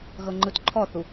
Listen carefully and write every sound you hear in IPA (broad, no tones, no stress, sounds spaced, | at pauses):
ɣ ɤ ŋ͡ǃ ɯ t ǃʰ ɔ θ u